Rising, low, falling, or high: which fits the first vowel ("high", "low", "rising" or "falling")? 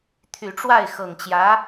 low